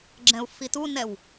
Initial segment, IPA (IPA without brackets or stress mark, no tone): ɡ͡ǁ